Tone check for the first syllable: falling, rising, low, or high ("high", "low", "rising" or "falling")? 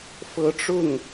rising